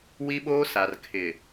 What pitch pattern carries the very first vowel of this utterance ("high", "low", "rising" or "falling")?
high